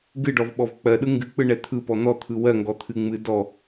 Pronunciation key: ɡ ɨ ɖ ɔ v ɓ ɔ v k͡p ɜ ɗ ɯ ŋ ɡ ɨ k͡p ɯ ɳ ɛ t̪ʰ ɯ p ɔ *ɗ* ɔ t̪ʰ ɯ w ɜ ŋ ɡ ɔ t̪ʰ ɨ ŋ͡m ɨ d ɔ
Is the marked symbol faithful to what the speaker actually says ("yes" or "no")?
no